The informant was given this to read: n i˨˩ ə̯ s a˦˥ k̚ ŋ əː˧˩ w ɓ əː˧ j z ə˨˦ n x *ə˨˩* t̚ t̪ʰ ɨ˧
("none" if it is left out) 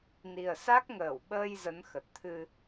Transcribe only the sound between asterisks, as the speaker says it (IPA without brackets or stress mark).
ə˨˩